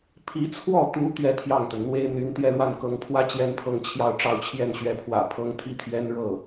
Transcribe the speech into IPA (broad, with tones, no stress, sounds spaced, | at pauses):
pʰ i˧˥ t͡sʰ w ɔ˥˩ t̪ u˧˥ t̪ ɥ ɛ˥˧ t̪ʰ j ɑ˥˩ ŋ t̪ ə˩ n n̪ w e˥ ɪ̯ n̪ y˧˥ n t̪ j ɛ˥˧ ɻ w a˥˩ n k ɤ˧˥ ŋ pʰ w ä˥ t͡ɕ j ɛ˥ n pʰ ɤ˥˧ ŋ t͡ɕʰ j ɑ˥˧ ʊ̯ ʈ͡ʂ ɑ˥˧ ʊ̯ t͡ɕʰ j ɛ˥˩ n ɕ ɥ ɛ˧˥ pʰ w ä̰˨˩ pʰ ɤ˧˥ ŋ t̪ʰ i˥ t̪ʰ ɥ ɛ˥ n ɻ ɤ˥˩